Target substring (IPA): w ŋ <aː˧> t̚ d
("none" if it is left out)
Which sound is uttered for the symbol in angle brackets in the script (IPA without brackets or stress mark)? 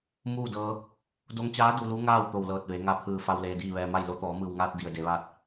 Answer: aː˧